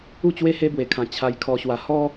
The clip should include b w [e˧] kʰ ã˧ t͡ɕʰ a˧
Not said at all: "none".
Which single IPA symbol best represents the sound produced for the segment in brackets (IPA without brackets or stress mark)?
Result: e˧